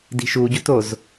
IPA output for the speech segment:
di̤ʃuɟut oz

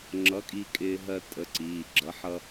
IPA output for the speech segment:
ŋ͡ǁʌ˨˥kʼi˧ kʼɪː˧ɦɜ˧ tʼə˨˥ǀiː˩˧˩ɡ͡ǁʌ˨˥ħ ʌ˧

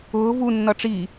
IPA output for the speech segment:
ʊː vu nːʌʈ͡ʂi

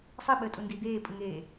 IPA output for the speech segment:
sˤɯɓəːtʼundi d̪eːpʼɯŋeː

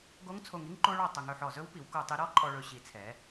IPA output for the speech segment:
ɡo˦˥ŋt͡sʰo˧ŋi˦˥ŋ ǃo˦˥ɭɔ˧ tˤɵ˩˧ŋ ɵ˧˩ħɔ˧˩zɵ˦˥wpi˩˧w ko˧˩ tˤi˧ ɾɔ˦˥ ǃʼɔ˧ɭɵ˩˧ɕi˩˧t͡sʰɛ˩˧

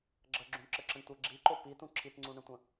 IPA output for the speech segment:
ɡ͡ǁəɡ͡ǁũɳǁəǁə̃ɳ tʷə ɡ͡ǁiǃo pitũ ǁʰitŋ͡ǀũɳə̃tʷə̃

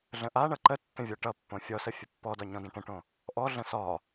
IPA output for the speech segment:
ɮə̃ʔaɳʌ ǃətːə̃ vʲɔʈʌpːõ fʲɔsə fʲəpːɔdɒ ɲɔ̃də̃ʈə̃ʈõ | ʔɔɮə̃ sɒ

